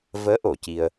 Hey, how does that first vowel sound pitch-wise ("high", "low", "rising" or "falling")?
rising